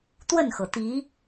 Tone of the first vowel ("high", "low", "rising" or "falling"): falling